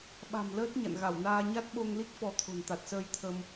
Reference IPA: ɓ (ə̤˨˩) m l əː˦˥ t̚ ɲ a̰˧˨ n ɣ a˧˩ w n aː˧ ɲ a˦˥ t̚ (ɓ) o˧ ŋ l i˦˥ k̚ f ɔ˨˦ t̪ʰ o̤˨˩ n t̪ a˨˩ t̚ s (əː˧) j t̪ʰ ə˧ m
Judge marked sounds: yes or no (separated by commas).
no, yes, yes